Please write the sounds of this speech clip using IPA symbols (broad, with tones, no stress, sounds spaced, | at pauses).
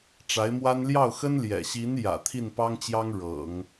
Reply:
ʈ͡ʂ a˧˥ ɪ̯ m w a˥ n l j ɑ˥˩ ʊ̯ x ə˥ n l j ɛ̰˨˩ ɕ i˧˥ n j ä̰˨˩ t̪ʰ i˥˩ n p ɑ˥ ŋ t͡ɕ j ɑ˥ ŋ ɻ ɤ̰˨˩˦ ŋ